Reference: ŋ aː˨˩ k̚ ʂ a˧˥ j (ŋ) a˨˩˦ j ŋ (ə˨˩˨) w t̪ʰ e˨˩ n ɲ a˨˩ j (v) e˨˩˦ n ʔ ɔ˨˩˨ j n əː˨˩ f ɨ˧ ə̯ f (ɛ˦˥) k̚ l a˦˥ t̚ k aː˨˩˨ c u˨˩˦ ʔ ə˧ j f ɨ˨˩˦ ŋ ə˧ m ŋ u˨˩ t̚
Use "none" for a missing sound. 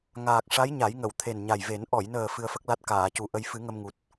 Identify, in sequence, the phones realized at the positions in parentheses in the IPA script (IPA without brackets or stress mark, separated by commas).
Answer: ɲ, ə˨˩˨, v, ə˦˥